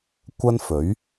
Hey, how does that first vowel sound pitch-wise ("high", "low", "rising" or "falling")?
high